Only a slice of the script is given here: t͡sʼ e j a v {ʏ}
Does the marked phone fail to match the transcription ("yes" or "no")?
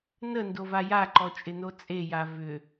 no